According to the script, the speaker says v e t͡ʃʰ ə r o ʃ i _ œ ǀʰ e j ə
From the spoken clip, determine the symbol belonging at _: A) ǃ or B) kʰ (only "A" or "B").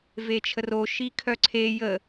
B